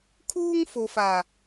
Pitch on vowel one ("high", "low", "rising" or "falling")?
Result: high